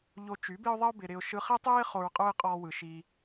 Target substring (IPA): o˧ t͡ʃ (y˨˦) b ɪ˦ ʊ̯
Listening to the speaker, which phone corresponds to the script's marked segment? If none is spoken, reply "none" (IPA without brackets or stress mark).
y˨˦